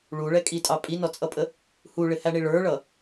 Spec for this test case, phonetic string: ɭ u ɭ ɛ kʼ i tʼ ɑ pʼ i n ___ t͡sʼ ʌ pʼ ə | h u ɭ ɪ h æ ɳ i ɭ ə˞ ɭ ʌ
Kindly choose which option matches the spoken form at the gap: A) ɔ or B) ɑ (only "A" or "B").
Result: A